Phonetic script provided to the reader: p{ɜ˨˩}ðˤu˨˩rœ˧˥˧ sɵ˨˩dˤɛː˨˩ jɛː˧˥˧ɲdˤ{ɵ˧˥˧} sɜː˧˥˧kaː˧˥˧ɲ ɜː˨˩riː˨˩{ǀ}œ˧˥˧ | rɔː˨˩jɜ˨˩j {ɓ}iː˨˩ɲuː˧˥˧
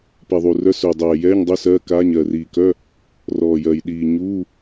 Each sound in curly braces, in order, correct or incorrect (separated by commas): incorrect, correct, incorrect, incorrect